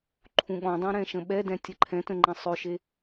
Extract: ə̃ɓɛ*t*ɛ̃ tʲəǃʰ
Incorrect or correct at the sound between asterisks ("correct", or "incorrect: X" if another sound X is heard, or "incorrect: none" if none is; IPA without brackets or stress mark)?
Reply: incorrect: d